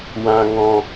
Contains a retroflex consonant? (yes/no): no